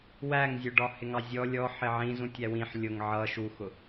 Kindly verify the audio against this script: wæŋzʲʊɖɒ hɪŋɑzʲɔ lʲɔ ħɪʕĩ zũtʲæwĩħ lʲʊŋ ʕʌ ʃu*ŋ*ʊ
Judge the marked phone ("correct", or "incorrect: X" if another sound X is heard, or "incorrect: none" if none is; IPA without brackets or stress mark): incorrect: x